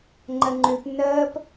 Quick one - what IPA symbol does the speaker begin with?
ŋ͡ǃ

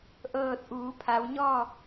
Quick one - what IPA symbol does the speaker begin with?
ʔ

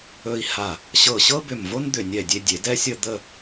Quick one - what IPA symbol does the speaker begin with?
ɵ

